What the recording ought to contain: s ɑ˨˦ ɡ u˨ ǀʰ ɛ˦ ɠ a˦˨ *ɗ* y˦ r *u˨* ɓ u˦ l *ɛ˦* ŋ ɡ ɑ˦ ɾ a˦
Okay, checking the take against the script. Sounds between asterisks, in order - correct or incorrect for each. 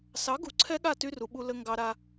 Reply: incorrect, correct, incorrect

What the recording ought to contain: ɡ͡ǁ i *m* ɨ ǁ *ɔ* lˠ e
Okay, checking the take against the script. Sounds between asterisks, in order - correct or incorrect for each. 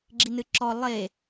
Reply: incorrect, correct

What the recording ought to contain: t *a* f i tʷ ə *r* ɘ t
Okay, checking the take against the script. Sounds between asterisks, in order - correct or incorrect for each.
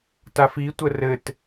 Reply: correct, correct

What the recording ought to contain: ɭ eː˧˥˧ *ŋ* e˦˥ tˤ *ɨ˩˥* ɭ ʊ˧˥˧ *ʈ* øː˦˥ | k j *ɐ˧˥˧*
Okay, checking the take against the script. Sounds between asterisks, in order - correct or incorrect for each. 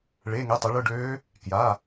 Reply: correct, incorrect, incorrect, incorrect

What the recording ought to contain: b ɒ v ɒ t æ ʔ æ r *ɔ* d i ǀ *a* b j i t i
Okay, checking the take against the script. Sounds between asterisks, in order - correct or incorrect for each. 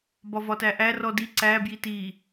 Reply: correct, incorrect

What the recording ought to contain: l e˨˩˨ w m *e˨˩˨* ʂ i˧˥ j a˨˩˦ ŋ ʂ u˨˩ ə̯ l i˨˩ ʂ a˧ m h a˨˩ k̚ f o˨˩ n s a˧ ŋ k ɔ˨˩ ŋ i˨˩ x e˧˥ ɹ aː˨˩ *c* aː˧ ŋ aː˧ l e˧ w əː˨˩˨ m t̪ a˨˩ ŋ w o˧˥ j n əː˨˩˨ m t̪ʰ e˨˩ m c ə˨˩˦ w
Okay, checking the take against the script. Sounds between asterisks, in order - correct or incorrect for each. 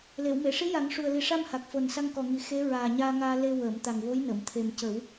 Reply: correct, incorrect

